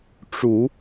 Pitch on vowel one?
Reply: low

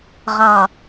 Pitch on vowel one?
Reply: low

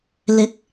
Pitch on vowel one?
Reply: rising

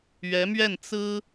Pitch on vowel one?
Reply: rising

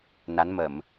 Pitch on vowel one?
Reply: rising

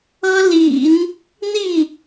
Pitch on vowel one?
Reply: high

